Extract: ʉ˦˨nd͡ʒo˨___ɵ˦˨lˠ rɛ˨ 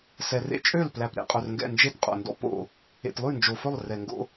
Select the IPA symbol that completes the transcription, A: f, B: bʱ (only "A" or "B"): A